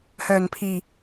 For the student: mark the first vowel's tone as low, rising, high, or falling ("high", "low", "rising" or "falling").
low